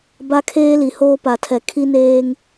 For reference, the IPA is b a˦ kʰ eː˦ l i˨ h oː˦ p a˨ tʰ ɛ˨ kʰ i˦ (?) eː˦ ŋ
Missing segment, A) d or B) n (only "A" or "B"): B